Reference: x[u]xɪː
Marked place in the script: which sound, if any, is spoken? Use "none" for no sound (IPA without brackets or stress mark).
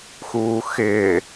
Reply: uː